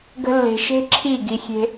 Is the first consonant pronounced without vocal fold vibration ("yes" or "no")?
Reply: no